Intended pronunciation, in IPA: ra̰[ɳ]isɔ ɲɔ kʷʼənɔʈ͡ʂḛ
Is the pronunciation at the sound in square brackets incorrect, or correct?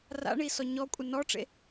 correct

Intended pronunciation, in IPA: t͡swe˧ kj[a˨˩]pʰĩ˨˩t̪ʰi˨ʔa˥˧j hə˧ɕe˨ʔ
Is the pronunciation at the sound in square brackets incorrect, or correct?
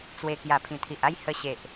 correct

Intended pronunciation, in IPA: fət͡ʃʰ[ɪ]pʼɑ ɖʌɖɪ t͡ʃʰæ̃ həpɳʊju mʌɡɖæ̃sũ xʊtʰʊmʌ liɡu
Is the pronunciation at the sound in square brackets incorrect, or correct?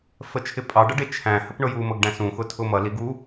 correct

